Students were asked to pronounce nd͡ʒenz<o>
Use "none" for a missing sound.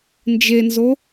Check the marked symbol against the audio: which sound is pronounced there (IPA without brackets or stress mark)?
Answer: o